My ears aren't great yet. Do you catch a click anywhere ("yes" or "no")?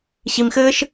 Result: no